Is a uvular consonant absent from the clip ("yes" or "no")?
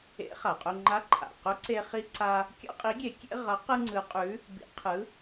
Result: no